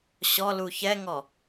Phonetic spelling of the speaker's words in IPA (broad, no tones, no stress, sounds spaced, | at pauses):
ɕ ɔ l u ç ɛ ŋ ɔ